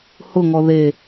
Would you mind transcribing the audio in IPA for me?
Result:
h ʊ ŋ ɔ ð e

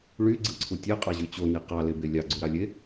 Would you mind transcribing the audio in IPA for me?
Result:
ɭ y ɡ͡ǀ ɯ ǀʰ u tʲ e qʼ ɑ ʑ y t͡ɕ o n i q ɑ l e b e lʲ ɑ ɡ͡ǀ u ɾ ɑ lʲ e

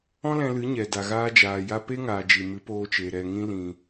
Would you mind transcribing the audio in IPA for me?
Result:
ɔ̃˦ l ɛ̃˧ l ɨ˨˦ ɲ ɛ˨ d a˨ ɣ aː˧ d͡ʒ aː˨ j a˧ p e˦ ŋ aː˨ d͡ʒ i˨ m ɨ˨˦ p oː˧ t͡ʃ e˨ ɾ ɛ˨ ŋ ĩ˧ l ĩ˨

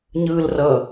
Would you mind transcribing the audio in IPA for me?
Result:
ɲ ɯː l r ʌ

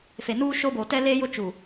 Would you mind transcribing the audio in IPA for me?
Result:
f e˨ n uː˦ ʃ o˦ b oː˨ t ɛ˦ l eː˦ j ʊ˦ t͡ʃ u˨

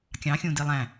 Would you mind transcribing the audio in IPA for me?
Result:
kʲ ɑ̃ xʲ ũ d i lˠ æ̃

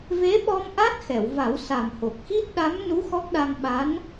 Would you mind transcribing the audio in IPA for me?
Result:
v e˧˥ ɓ ɔ˧ m ʔ a˦˥ t̚ x ɛ˨˩˨ w v a˨˩˦ w s a˨˩ m h o˨˩ k̚ x i˦˥ t̚ ɗ a˧˥ m n u˧˥ x ɔ˦˥ k̚ ɗ a˧ ŋ ɓ a˧˥ n

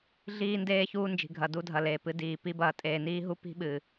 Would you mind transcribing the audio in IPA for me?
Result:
ɮ iː˦ n d eː˦ ç uː˦ n d͡ʒ i̤˨ ɡʱ ɐ˨ d u˦ dʱ ɐ˨ l eː˨ p ɨ˨ d iː˨ p i˦ b ɐː˨ tʼ eː˨ n iː˦ ɦ u˦ p i̤˦ ɓ ɨ˨

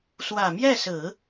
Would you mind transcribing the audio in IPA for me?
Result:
s w ä˨˩ m j ɛ˥˩ s ɹ̩˨˩˦

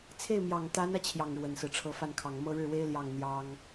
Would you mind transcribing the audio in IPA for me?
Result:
t͡sʰ e˥˩ ɪ̯ m j ɑ˨˩ ŋ t̪ a˧˥ n ä˧ t͡ɕʰ j ɑ˥˩ ŋ ɻ w ə˨˩ n s ɹ̩˦ ʈ͡ʂʰ ɤ˧˥ f a˥˩ n kʰ ɑ˨˩ ŋ m ɤ˥˧ ɻ ɻ̩˥˩ w e˥ ɪ̯ l j ɑ˥˩ ŋ n̪ j ɑ˥ ŋ

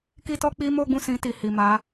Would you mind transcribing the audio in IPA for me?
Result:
k i˦ t ɔ˦ k͡p i˦ m o˦ ɡ͡b ũ˦˨ s ĩ˧ t i˨ h i˨ m a˨˦

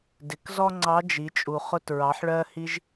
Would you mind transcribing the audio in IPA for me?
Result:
d ɪ˩˧ k z ɔ˥ ŋ͡ǀ ɑ˧˥ d͡ʒ i˩˧ t͡ʃʼ u˩ χ ʊ˧ t ɹ ɑ˩˧ ħ ɭ ɜ˧ h i˧ ʒ

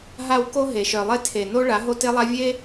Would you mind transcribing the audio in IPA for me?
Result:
ɦ a˨ w k o˦ ɦ e˨ ʃ œ˨ lˠ e˦ tʰ e˨ n o˦ ɭ a˨˦ ɦ o˦ t e˦ lˠ a˦ vʲ e˦

